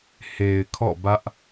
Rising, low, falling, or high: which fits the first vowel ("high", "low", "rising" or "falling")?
low